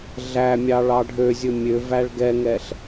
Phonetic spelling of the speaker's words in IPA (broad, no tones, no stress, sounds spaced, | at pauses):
ɮ æ mʲ ɑ ɭ ɑ ɖʱ ø zʲ ɵ mʲ ø v æ ɭ ɡ ɛ ŋ ɛ ɬ